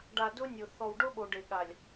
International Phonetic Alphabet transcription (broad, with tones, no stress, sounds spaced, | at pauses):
ɖ a˨ d ʊ˦ nʲ ʊ˨ θ ɔ˨ w ɖ ʊ˦ ɓ o˨ ɖ e˨ ɠ a˨ lʲ